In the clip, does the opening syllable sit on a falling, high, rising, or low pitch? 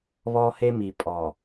high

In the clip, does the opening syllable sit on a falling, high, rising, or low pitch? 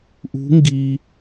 rising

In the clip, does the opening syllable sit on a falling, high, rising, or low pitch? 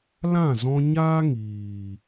falling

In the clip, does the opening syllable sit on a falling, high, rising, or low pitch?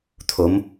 rising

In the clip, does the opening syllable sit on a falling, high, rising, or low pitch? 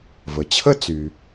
low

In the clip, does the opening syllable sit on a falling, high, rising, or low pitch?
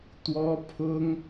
high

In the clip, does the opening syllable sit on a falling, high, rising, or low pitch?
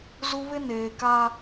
high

